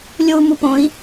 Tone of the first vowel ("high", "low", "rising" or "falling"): high